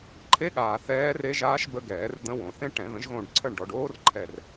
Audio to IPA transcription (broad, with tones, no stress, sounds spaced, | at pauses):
ǃʰ e˦˥ ɠ aː˨ θ ɛː˦˥ r e˦˥ ʒ aː˦˥ ʃ b ə˦˥ ɡ ɛː˨˩˦ r d̪ ə̃˦˥ w õ˨˩˦ θ ẽ˦˥ ʈ ɛ̃˨˩˦ ð ə̃˩˥ ʒ ɣ õ˦˨ ɖ ǀʰ ə˦˨ ɳ ɖ ɔ˨ ɖ oː˦˥ r ǃʰ ɛ˦˨ r